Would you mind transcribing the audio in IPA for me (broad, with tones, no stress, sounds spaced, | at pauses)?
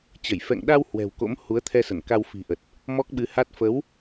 t͡ɕ ə˧˩ j f ɛ̰˧˨ ŋ ɗ a˧ w h w ɛ̤˨˩ w k o̰˧˥ m h u˨˦ ə̯ t̪ʰ ɛ˧ s ə˧˩ n k a˧ w f i̤˨˩ ʔ ə˨˩ t̚ | m ɔ˦˥ k̚ ɓ ɨ˨˦ h a˦˥ t̚ f ə˨˦ w